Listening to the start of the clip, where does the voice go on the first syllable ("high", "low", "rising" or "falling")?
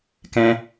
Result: high